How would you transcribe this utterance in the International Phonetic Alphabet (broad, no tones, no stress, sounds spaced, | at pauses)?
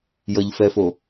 j ʌ ʎ f ɛ f o